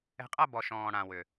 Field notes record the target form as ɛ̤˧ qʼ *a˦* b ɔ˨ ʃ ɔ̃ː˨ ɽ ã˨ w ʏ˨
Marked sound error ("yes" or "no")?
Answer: no